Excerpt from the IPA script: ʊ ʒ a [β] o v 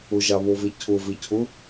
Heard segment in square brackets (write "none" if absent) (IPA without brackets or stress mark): β